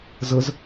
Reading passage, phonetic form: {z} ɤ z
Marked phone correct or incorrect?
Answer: correct